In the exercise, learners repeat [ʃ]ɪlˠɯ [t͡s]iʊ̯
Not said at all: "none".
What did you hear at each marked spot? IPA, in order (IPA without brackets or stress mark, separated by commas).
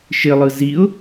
ʃ, z